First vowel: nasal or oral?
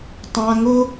nasal